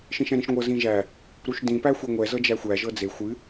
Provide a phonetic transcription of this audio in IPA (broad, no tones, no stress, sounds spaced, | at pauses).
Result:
ʃ ĩ ʃ ɛ̃ ɾ ĩ ʃ ŋʷ ɤ z ĩ ʒ æ | ɾ u ʃ d ĩ p æ xʷ e ŋʷ ɛ z ɤ d͡ʒ æ xʷ æ ʒ ɤ d͡z e xʷ ɨ